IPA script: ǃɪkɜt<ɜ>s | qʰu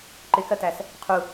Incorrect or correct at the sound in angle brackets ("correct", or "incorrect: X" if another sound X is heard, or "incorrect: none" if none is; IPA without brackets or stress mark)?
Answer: incorrect: æ